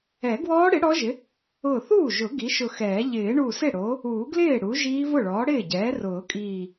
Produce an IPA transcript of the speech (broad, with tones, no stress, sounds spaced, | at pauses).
ɛ˨˩˦ ɡ w ɔː˦˥ ɽ ɪ˩˥ ɽ ɔ˦˥ ʒ ɪ˩˥ | ʊː˧˩ θ uː˥˩ ʒ ʊ˨˩˦ ɡ i˩˥ ʃ ʊ˧˩ x ɛː˨˩˦ ʎ ɪː˨˩˦ ɳ u˧˩ s ɪ˥˩ ɽ o˩˥ | uː˨˩˦ ɡ l ɪː˥˩ ɽ u˩˥ ʒ iː˦˥ v ʊ˥˩ ɭ ɔː˩˥ ɽ ɪː˥˩ ɟ ɛː˩˥ r ʊː˨˩˦ kʼ iː˧˩